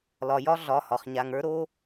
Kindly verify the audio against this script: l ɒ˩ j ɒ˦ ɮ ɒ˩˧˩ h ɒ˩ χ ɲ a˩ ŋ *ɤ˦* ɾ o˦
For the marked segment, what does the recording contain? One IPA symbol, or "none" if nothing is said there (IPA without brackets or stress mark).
ə˞˦